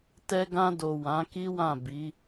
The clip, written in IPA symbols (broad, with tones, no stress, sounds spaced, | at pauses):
t ɛ˧ ɡ ã˧ d o˨ w ã˨˦ k i˦ w ã˦˨ b i˨˦